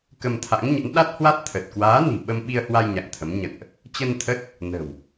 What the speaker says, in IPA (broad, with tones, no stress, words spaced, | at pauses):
kə˧mt̪ʰa̰˧˥ŋɲə̰˧˥n ɗa˦˥t̚hwa˦˥t̚t̪ʰə˨˩t̚ kwaː˨˦ni̤˨˩ ɓə˧m ɓi˧ə̯hwa˧j ɲa̰˧˨ŋt̪ʰə˨˦m ɲə̰˧˨nʔ | t͡ɕə˧nt̪ʰə˦˥t̚ | nə̤˨˩w